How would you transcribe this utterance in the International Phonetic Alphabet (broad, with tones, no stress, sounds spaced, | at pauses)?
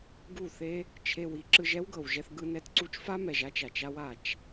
ɡ u˦˨ θ e˦ | t͡ʃʰ e˧ w i˨˦ ǁ ɯ˧ ʒ ɛ˦ w ɡ ɤ˨ w ʒ ɛ˧ θ ɡ ɯ˧ n ɛ˧ t ǀ u˧ t͡ʃ f a˦ m ɛ˨ ʒ a˦ t͡ʃ a˨ t͡ʃ a˦ w a˨ t͡ʃ